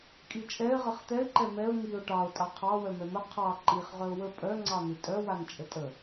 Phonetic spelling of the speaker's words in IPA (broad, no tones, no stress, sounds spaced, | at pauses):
kʼ i t͡ʃʼ ɛ ɪ̯ ʁ ə χ t̪ ɛ ɪ̯ ǃ ɛ m ɛ ʊ̯ ŋ i ʊ̯ ʈ ɑ ʊ̯ tʼ ɑ qʰ ɑ w œ m ɛ m ə qʰ ɑ ǃ i χ ʁ œ ʊ̯ w ə pʼ œ ŋ͡ǀ ɑ n̪ i tʼ œ w a n t͡ʃʼ ə tʼ ə